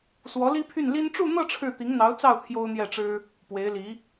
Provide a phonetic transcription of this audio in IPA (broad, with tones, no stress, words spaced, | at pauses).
swɔ˧˥li˥pʰy˥˩n li˥n ʈ͡ʂu˥˧n̪ɤ˥˧ ʈ͡ʂʰɻ̩˥˩t̪i˧˥ŋn̪ɑ˧˥ʊ̯t͡sɑ˥˩ʊ̯ t̪ʰjo˥ʊ̯n̪jɛ˥˩ʈ͡ʂɻ̩˥ | pwe˧˥ɪ̯li˧˥